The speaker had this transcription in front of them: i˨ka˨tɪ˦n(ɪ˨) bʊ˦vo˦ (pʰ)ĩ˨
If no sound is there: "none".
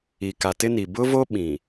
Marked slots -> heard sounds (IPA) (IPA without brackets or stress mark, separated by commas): i˨, ɓ